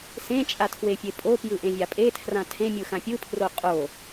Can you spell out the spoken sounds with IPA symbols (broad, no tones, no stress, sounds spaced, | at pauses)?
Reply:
s ẽ t͡ʃʼ a tʰ w e fʲ e pʼ o p j ɯ ʔ ẽ vʲ a pʼ e tʰ r ã tʰ ẽ mʲ ɯ x ã pʲ ɯ pʰ r o qʼ o